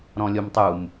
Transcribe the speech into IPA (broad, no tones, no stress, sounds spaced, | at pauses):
ɾ ɔ̃ lʲ o m tˤ u m